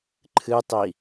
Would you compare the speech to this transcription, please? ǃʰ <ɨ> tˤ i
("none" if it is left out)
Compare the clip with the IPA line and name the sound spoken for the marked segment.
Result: ɨ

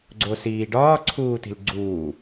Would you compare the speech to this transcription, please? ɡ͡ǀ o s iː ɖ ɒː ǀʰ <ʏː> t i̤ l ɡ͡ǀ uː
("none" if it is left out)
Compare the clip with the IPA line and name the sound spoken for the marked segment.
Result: uː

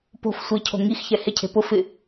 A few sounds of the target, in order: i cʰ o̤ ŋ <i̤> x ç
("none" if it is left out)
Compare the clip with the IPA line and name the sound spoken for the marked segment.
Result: i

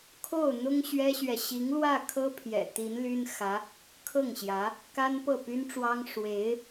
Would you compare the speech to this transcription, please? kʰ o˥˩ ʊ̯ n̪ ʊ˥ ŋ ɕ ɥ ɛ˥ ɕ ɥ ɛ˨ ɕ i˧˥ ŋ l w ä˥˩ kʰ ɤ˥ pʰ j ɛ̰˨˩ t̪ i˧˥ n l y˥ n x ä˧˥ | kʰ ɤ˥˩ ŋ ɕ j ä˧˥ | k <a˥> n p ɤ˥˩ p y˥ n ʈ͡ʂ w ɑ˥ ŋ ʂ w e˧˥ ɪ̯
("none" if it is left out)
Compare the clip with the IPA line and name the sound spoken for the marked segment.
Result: a˥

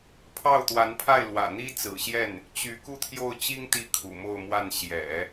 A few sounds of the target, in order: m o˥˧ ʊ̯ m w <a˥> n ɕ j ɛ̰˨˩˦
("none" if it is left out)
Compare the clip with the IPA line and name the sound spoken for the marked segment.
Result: a˥˩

